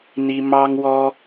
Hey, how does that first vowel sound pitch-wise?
high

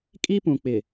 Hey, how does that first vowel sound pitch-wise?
high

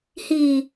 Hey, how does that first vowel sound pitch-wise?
low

